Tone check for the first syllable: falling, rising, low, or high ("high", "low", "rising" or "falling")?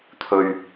low